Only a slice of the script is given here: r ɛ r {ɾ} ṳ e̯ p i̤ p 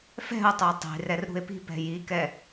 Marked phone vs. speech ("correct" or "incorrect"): correct